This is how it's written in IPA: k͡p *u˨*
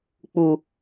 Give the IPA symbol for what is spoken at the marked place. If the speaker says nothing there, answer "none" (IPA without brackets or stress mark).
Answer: u˦